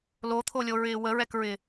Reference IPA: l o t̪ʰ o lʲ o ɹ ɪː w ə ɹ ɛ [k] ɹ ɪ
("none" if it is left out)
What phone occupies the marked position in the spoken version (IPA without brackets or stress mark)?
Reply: k